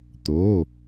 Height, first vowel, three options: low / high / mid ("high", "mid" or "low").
mid